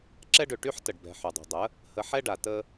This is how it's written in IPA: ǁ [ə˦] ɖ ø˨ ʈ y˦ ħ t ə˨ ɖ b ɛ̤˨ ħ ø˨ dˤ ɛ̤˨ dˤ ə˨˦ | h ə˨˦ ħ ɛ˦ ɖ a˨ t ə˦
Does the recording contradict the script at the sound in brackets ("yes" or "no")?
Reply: yes